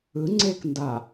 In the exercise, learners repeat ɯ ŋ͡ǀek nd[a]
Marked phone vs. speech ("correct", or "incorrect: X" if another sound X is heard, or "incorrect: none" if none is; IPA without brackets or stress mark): correct